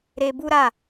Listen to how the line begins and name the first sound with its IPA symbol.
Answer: ɾ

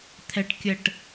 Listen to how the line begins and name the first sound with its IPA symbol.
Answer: t̪ʰ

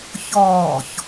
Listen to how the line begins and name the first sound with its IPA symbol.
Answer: ç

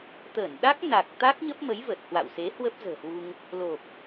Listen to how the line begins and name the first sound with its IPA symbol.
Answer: t̪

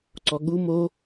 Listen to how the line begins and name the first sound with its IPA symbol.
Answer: ǀ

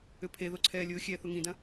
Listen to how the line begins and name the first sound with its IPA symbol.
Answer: ʏ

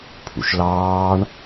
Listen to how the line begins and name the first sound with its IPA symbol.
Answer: pʰ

